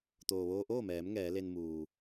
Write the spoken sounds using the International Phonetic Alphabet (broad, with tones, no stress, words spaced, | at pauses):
t̪oː˩ʋoː˧ʔoː˥˨mɛː˩˧m ŋɛː˩˧le˧nmuː˩